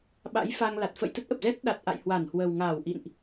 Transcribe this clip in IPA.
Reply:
ɓ a̰˧˥ j f a˧ ŋ l a˨˩ t̚ f ə̰˧˨ j t̪ ə˦˥ t̚ ʔ ə˨˩ p̚ z ɛ˦˥ t̚ ɗ a˨˩ t̚ ʔ a̰˧˨ j h w a˧˩ n h w ə˨˩ w ŋ aː˧˩ w ʔ ḭ˧˨ n ʔ

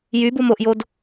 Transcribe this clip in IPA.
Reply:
j y b u m o ʔ j o d

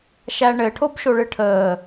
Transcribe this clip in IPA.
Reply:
ʃ æ ɳ ɘ ʈʰ o b ʃ o ɭ ɨ ʈʰ əː

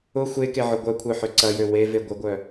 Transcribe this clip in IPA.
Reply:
ʊ xʷ e k e ʕ ʊ ɡʷ œ kʷʰ œ ħ ø ǀ ɐ j ø w e v e ɡʷ ə ɡʷ œ

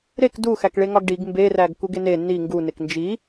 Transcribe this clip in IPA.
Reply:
ɾ e k d u x æ k ɭ e ŋ ɒ ɡ ɖ i ɡ m b e r æ ɡ k u ɡ e n e n i ŋ ɡ u n e k n d͡ʒ i

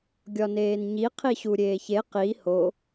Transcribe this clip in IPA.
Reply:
ɡʲ ɒ n eː n ɲ i qʰ i ɕ u ɾʲ eː ç e q i h o

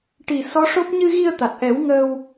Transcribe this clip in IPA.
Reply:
ʈ i˨˩ s ɔ˧˥ ʂ o˦˥ p̚ ɲ ɨ˧ ɣ i˧ ə̯ t̪ a˨˩ t̚ ʔ ɛ˨˩˦ w ŋ əː˧ w

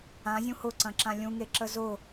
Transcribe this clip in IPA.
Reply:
ã zʲ ũ h ʊ ǀ ɐ̃ ǁ ã lʲ ũ ŋ e ǁ ə z ʊ

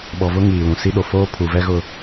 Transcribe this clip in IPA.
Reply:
ɓ ɔ˨ v ʊ˦ ŋ iː˨ l ũ˨ s i˦ ɗ o˨ f oː˦ pʰ u˨ v ɛ˦ ɣ ʊ˦

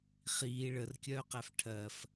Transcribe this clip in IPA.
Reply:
χ iː ɭ ə r kʲ œː q æ f ʈʰ ɜ f

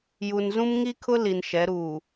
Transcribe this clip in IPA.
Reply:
j u˨ n z ũ˦ m ŋ i˦ kʰ ʊ˦ l i˨ n ʃ ɛ˨˦ ɾ uː˨

